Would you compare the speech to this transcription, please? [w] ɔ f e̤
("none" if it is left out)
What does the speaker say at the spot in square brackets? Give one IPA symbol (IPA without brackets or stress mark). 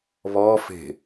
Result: β